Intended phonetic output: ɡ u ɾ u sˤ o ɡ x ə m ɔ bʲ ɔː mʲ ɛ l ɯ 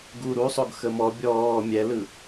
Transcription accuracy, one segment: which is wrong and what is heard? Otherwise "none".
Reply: none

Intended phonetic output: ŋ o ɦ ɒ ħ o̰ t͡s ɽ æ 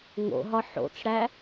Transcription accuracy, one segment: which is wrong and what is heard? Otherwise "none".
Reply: o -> o̰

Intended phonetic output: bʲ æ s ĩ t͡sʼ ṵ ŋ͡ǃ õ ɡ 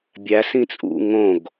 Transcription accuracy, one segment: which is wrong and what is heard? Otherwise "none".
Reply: ŋ͡ǃ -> ŋ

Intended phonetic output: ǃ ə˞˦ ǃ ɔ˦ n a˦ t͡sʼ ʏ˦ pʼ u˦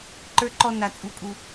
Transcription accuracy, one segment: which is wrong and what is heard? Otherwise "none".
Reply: ʏ˦ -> u˦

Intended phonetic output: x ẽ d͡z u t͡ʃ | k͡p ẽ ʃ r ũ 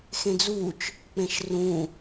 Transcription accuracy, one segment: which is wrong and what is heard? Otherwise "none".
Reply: none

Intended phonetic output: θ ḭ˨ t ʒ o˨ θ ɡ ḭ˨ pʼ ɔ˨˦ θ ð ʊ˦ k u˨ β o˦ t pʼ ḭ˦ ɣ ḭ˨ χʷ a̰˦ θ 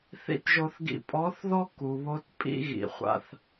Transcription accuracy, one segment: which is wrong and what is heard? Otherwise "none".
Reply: ʊ˦ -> ɔ˦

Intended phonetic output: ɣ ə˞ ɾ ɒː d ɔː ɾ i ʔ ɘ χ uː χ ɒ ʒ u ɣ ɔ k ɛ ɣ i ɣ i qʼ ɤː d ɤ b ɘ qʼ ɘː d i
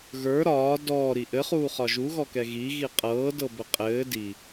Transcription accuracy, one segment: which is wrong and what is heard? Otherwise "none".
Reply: none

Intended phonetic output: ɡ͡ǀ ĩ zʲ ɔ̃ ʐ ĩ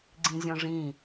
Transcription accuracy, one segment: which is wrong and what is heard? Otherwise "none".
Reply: none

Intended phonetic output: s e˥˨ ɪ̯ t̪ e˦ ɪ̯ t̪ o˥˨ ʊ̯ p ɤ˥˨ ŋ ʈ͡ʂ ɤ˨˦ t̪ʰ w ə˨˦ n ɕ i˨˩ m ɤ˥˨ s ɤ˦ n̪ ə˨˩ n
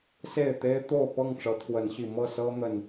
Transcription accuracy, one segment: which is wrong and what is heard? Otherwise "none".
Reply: none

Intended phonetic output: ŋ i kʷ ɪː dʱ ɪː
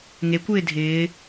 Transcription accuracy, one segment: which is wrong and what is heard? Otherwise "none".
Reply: i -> e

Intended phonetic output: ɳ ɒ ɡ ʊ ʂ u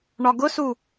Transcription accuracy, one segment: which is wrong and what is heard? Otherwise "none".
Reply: ʂ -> s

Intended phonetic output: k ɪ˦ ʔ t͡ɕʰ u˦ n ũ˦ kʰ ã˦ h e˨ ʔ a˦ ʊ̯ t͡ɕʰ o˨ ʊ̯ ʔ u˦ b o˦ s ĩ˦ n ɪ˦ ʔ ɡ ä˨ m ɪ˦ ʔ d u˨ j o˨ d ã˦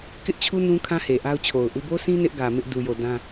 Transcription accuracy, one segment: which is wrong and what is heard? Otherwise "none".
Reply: none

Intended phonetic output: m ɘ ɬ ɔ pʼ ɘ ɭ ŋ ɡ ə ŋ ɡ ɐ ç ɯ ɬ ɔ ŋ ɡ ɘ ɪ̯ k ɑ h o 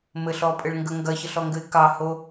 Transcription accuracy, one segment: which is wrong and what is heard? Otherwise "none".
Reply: ɯ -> ə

